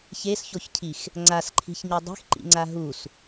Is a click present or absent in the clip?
present